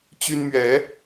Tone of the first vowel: high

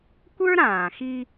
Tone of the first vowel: high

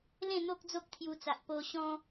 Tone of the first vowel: falling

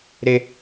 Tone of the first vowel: high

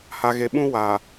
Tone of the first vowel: low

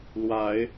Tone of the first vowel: rising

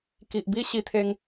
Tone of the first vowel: low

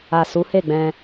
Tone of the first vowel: low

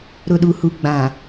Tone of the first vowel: low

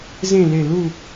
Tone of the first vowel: falling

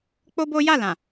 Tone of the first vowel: high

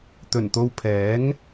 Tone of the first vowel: low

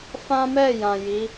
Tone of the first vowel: high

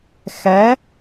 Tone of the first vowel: rising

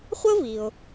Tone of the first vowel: high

